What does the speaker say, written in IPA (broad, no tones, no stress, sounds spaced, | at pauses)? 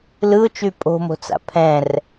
l ɯ ʊ̯ t͡ʃ y pʼ o̤ m o̤ t͡s a̰ pʰ ɛ̃ r